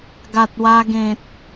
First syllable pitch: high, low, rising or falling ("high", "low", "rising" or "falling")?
low